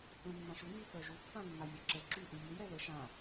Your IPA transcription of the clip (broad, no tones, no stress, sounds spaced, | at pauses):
ə̃ nː ã ʃ u n i θ œ ʒ u kː ã nː a vʲ ɔ ǁ ɛ ǁ y ʔ u vʲ e j ɛ ð ə ʃ ã